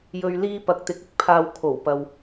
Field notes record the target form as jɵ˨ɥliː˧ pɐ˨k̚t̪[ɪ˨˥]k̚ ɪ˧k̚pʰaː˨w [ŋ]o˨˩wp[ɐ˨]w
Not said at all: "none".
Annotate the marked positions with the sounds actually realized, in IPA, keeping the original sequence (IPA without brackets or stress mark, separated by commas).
ɪ˨˥, kʰ, ɐ˨